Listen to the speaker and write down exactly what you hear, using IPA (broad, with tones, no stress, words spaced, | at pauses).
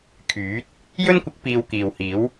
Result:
kʰyː˨˥t̚ | jɵ˥nkʷɪ˨˥k̚ piː˧wkiː˨whiː˨˥w